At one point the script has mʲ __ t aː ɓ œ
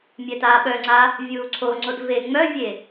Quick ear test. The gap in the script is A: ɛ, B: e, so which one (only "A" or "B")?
A